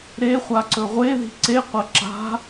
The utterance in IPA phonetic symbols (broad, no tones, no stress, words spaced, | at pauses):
ɾeχʷa ǀɵʁʷeði̤ ǀeqʷɐ ǁa̤